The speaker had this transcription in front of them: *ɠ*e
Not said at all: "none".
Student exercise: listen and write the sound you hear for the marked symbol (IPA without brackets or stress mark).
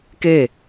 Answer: k